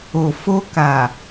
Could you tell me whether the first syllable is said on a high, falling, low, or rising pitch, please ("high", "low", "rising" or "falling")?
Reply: low